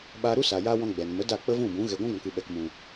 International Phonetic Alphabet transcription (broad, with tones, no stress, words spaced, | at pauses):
ɓa˧ɾu˦sa˨ja˧ wɔ̃˦ɡ͡bɛ˨n mə˨˦ da˦˨ k͡pə˦vũ˦˨bũ˨˦ ɣɛ˨ɡʷũ˦ɡɔ̃˨kɨ˨ ɓɛ˨kmũ˨